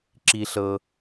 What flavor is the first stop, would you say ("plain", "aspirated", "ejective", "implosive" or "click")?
click